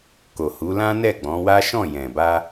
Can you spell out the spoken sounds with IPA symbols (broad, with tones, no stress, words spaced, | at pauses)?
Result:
ko˨hu˨˦lã˦ nɛ˦˨ɡ͡bɔ̃˨˦wa˦ ʃɔ̃˦˨jɛ̃˨ba˧